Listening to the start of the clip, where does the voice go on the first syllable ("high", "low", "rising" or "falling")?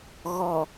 low